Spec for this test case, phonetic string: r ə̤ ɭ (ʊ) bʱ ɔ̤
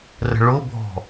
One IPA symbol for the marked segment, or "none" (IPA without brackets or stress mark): ʊ